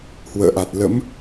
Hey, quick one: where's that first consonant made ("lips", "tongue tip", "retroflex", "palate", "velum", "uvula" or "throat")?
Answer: throat